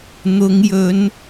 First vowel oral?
yes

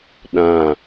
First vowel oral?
no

